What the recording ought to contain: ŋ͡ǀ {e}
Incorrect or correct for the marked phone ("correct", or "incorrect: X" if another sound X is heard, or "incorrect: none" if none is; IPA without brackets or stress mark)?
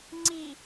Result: incorrect: i